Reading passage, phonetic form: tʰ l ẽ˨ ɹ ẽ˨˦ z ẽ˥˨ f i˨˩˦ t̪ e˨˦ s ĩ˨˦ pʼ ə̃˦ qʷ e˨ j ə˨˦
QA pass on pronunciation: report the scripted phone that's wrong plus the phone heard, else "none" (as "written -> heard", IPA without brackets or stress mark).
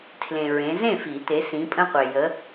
none